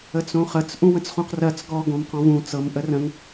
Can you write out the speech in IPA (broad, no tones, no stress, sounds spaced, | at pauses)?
ə t͡s õ χ ə t͡s ʔ ũ w ə̃ t͡s χ ũ q r ɜ t͡s ɡ ɔ ɡ õ m q ɔ̃ v ũ t͡s ɤ m ʔ ə r ə̃ ŋ